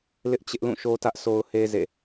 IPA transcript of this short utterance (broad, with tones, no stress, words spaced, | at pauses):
lɪ˦ʔt͡ɕɪ˦ʔlũ˦˨ ʃo˦tä˦ʔsʰo˦ʊ̯he˦ zḛ˦˨